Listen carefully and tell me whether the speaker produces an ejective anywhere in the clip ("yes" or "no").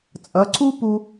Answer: yes